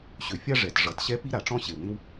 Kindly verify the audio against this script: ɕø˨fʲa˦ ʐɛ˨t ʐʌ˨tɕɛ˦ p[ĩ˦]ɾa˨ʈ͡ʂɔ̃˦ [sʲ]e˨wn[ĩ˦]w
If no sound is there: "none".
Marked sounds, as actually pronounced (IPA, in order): i˦, ɕ, ĩ˦

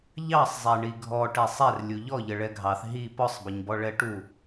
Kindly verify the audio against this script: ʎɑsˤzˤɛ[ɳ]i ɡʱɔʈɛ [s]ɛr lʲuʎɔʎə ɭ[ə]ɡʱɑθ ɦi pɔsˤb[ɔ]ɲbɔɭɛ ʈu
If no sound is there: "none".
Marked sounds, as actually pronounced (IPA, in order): ɳ, sˤ, ɛ, ʌ

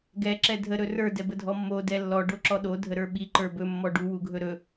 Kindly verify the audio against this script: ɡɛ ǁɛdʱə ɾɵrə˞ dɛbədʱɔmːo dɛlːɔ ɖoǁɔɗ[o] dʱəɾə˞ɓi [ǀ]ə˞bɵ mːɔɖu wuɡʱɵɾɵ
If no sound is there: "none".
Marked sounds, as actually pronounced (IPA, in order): o, ǃ

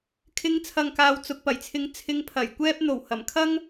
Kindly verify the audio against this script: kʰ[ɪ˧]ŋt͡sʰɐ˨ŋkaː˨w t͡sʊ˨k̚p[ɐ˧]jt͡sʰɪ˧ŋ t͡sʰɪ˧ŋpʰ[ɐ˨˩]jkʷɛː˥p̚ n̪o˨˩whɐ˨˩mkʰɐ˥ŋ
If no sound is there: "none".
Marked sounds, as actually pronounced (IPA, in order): ɪ˧, ɐ˨˩, ɐ˨˩

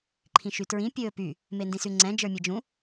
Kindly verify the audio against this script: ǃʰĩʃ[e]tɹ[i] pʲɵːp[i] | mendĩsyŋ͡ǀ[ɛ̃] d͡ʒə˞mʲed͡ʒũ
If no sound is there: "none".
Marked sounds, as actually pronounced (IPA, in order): y, ĩ, y, ɛ̃

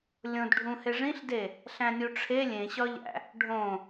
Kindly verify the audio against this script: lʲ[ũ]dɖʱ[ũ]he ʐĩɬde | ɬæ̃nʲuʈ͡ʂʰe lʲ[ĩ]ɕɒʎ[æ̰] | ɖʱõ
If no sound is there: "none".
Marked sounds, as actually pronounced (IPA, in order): õ, ũ, ẽ, æ̰

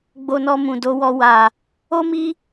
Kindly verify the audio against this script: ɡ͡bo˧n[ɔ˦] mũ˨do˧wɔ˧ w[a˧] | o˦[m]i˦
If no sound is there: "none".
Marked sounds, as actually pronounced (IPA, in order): ɔ˧, a˧, m

